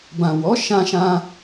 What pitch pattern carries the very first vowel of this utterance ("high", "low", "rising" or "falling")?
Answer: low